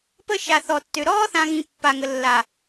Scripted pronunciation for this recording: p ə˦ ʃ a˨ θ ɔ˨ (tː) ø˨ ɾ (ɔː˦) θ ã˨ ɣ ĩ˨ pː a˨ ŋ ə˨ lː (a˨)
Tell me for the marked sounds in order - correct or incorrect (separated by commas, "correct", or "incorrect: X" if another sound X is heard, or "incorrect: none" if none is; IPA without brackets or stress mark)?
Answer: correct, correct, correct